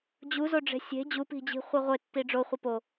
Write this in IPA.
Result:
d͡ʑuzoɖ͡ʐe̤ sʲe̤ d͡ʑupi̤d͡ʑi̤ χʷiʁʷe tːiɖ͡ʐo χʷipo

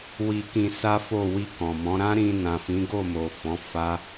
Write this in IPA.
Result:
wi˧kĩ˧ sa˦fo˦˨ wi˧ kɔ̃˨mɔ̃˨˦ ɾã˦ɾĩ˧nã˨ fĩ˨˦ɡo˦˨mo˨ fɔ̃˨˦ fa˦

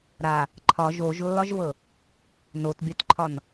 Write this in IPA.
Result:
ɾa | ǃʰɒ ʒoʒlːɒʒvɤ | notbʲɒtǃʰɒn

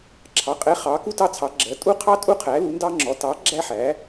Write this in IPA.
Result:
ǁʰɑ˩˥qʼɛ˩˥ χɑ˩˥ ku˥tɑ˥t͡sʰɑ˩˥ ɡ͡ǁɜ˩˥tʼu˥qʰɑ˥ tʼu˥qʰæ˩˥ lu˩˥ndɑ˥ŋ͡ǁɔ˩˥ tɑ˩˥ ɡ͡ǁæ˥ħæ˩˥

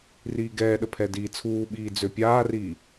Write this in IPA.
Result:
riːɡɛːɗə pʰɛdiːt͡sʰuːɓiː d͡zøpʲaːriː

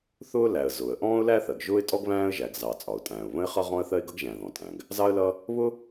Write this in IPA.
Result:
θʊː˥ læ˩ə̯ zʊː˩ə̯ ʔɔ̃ː˥ʊ̯læ˥θɜ˩ɡ ʒʊː˥ɪ̯tʼɔ˥ɡ βæ̃ː˥ə̯ ʒæ˩ɡzɑ˩ t͡sʼɒ˩ʊ̯tʼæ̃ː˩ʊ̯ βə̃˥ɪ̯χʌ˥ ʁɔ̃˥ə̯θɜ˥ɪ̯ɡʌ˥ɡ ʒæ̃˩ ðɔ̃˩tʼæ̃˩ɡ | zɑ˥ə̯lʌ˥ | βʊ˥

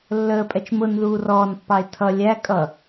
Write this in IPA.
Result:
lːəːpʼɛt͡ʃ mʊn ðuːrɔːnpːɑɪ̯ tʰʌ lʲæ kʼʌ

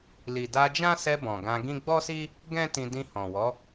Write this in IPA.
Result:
li˨da˧d͡ʒã˦sɛ˧ bɔ̃˨ɡã˧ɡĩ˦ ɡ͡bɔ˦si˦ | ɡɛ̃˦tĩ˧ dĩ˧hɔ̃˨wɔ˨˦

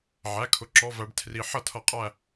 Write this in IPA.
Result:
ʕæ˩˧˩kʰʊ˩˧˩ ǁɔ˩˧˩væ˩˧ɖ tʰri˩˧ ħʌ˧˩˧tʰʌ˩˧ qʼæ˦˨

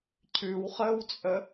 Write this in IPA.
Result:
cʰʉwχəːwt͡sʼə

